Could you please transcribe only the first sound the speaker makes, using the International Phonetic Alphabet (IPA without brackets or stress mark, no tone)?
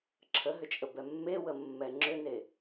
ǁʰ